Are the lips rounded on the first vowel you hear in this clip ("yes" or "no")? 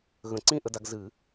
no